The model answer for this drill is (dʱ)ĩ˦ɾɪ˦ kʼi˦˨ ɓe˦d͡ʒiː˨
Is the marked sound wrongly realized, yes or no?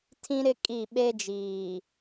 yes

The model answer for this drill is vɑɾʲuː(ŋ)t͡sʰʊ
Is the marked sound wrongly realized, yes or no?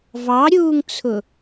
no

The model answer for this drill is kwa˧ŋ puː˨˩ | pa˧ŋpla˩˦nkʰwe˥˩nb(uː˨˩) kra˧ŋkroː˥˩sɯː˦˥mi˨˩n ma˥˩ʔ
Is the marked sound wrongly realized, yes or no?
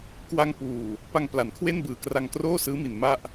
yes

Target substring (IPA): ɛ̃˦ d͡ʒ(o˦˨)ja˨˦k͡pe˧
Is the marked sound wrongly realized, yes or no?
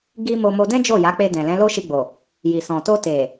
no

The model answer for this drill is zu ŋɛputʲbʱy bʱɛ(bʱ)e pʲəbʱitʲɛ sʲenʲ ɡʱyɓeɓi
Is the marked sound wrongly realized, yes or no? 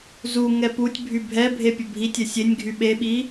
no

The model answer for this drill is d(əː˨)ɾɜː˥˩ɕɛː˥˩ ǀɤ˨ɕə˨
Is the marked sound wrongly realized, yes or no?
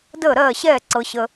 yes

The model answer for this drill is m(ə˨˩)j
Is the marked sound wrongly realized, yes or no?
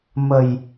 no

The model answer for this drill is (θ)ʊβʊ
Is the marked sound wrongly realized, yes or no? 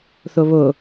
no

